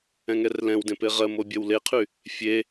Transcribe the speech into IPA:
ɛ̃ŋɛrlɛ̃wdẽ peʁɜmo bʲɜwleqʰy | fʲe

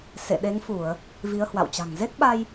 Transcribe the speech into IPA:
sḛ˧˨ɗe˨˦ŋfu˧˩˨ə̯ | vi˨˦ə̯hwa̰˧˨wt͡ɕa̤˨˩ŋ ze˦˥k̚ɓa˧j

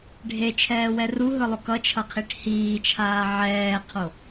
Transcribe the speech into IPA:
ɖʱet͡ʃʰɛːwɛ ruɦɯlˠo kʌt͡ʃʰʌqʰiʈ hiːt͡ʃʰaː ʕɛːqʰo

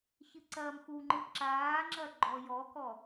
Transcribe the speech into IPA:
çɨǀɐːmxuŋ͡ǃɨ ǁaːŋ͡ǁɐ ɡ͡ǃɔjɔkɔ

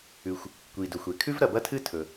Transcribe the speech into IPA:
ʉ˩xʷ | kʷi˩dɵ˩xʷe˩ kʰʉ˥vɾɐ˩bɐ˥tʰɨ˥ tʰɵ˩

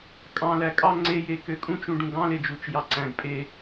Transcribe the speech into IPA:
kʼɑ̃ lækʼɑ ŋ͡ǀeje køkʼũt͡ʃũ ɖũɡɑ̃led͡ʒut͡ʃ jɑǀæ̃ɡ pʼe

